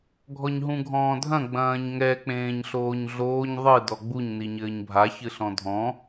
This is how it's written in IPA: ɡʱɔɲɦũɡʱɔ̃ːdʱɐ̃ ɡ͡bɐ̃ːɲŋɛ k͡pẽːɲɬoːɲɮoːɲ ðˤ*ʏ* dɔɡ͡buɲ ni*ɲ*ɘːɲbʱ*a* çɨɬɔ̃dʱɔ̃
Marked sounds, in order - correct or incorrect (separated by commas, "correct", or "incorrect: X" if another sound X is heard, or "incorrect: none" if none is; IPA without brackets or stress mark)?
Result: incorrect: ɨ, correct, correct